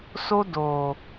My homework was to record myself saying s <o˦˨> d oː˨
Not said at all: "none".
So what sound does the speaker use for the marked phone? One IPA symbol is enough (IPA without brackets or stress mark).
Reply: o˦